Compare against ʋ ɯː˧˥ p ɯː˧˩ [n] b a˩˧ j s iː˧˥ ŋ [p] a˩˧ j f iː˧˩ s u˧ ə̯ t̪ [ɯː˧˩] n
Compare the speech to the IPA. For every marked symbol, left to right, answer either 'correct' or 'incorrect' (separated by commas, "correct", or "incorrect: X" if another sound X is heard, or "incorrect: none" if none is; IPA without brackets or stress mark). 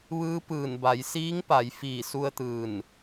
correct, correct, correct